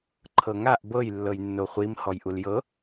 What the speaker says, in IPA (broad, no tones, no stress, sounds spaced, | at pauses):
ǃʰ ɤ ŋ a ʔ b ɤ j lː ɤ j nː o χʷ i m h ɔ j ʔ u l j ɤ